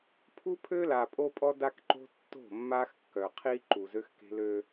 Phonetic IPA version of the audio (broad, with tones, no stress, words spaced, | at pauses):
pʰu˦pʰø˦la˨ pʼo˦pʼɔ˦da˦kǃo̤˦ tːo̤˦˨mːa˦xkːœ˨ qʰi˦ǃu˨ zø˦xke̤˦lø˦